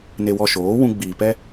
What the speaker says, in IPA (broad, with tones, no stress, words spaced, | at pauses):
ne˧wɔ˧ʃoː˨˦ wũ˧ɡ͡biː˨ pɛ˦